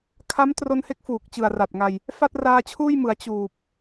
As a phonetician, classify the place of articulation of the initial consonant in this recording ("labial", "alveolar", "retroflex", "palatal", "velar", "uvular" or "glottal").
velar